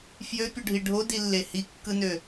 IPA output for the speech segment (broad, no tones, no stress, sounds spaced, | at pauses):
f j ø pʲ u ɖʱ i ɖʱ o d i lː e h i kː ɯ n ø